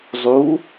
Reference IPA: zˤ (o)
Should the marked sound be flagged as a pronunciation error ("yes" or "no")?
yes